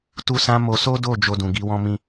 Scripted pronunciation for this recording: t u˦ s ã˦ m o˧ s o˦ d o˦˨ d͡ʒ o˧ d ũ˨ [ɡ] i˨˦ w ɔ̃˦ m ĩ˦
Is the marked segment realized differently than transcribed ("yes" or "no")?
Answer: no